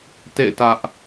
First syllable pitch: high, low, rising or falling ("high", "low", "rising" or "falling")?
falling